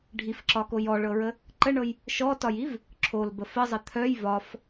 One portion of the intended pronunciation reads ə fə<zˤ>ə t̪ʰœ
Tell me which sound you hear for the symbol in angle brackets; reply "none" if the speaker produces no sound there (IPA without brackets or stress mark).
zˤ